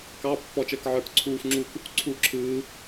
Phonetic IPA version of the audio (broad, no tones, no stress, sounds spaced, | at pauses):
k ɑ pː ɔ t͡ʃ əː k ʕ ə˞ k ǀʰ uː f ŋ͡ǁ u k | ǀʰ uː ǁʰ ɯː